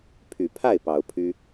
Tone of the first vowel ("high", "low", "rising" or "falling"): rising